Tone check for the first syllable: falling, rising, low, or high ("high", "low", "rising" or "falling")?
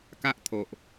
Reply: high